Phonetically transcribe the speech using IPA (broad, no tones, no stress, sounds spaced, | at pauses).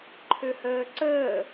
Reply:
ǃʰ ø h əː ǀ əː